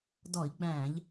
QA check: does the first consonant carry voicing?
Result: yes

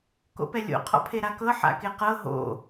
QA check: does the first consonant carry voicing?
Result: no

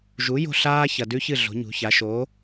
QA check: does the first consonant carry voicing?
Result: yes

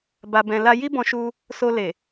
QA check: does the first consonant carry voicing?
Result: yes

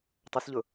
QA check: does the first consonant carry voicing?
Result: no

